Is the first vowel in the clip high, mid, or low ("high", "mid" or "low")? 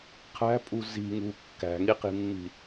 low